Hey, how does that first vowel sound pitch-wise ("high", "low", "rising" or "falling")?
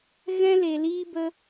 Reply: high